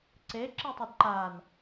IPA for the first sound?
ǀ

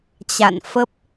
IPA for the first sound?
t͡ɕ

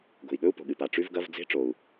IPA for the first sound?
ɡ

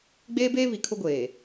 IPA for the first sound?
ɡ͡b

